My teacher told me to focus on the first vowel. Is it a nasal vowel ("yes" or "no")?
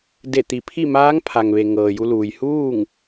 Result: no